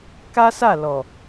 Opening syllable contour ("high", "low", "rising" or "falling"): high